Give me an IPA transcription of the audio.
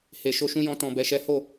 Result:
h e˨ ʃ o˧ ʃ ũ˧ j ɔ̃˦ t ɔ̃˧ b ɛ˧ ʃ ɛ˦ h o˦˨

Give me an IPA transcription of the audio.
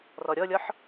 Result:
r ɔ ɾʲ ɔ lʲ ɔ ħ

